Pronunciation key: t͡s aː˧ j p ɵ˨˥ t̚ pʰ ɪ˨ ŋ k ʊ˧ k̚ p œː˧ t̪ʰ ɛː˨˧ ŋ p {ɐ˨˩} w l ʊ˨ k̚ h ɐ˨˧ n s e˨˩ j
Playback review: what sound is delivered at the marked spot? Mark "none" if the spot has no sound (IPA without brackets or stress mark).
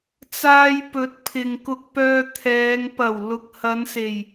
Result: ɐ˨˩